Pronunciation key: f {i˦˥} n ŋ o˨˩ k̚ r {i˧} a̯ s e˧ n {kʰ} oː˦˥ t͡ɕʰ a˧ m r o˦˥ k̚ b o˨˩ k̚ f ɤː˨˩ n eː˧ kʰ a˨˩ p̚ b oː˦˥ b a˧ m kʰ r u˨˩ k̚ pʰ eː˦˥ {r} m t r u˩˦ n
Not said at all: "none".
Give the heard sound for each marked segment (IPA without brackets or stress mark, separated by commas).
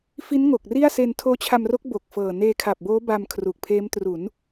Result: i˦˥, i˥˩, tʰ, none